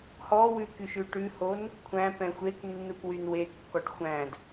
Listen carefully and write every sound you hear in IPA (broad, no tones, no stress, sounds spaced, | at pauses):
h ɔ w ʉ k y ʃ ʉ ʈ ʉ h o n | kʷʰ æ̃ p ɛ̃ xʷ e k nː u k w y n w e kː ɔ ʈ xʷ æ̃ d